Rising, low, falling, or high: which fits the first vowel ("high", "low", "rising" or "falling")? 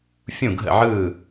falling